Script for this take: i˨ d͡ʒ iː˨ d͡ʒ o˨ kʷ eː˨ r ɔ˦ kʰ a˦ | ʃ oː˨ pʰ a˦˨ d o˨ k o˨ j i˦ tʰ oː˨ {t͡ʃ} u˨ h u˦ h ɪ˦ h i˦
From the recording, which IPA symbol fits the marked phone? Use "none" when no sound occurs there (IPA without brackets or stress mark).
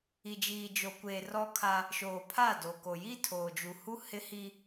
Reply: d͡ʒ